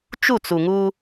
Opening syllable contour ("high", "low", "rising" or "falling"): falling